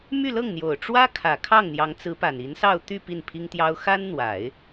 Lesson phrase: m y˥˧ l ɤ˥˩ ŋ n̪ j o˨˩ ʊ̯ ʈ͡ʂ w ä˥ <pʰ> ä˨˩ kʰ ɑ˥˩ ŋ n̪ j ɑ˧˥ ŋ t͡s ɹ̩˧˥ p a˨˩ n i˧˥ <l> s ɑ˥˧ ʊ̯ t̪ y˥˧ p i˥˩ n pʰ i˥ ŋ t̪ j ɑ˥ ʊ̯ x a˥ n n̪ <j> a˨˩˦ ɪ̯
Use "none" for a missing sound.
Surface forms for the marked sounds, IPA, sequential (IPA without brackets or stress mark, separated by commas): kʰ, n, w